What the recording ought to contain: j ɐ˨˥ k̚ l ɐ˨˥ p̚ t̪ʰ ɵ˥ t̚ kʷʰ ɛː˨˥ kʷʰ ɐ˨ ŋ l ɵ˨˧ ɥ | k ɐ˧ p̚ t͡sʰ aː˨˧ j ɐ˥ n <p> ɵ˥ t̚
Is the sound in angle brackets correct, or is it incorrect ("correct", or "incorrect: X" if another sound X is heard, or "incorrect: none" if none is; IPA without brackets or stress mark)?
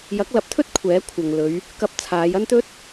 incorrect: t̪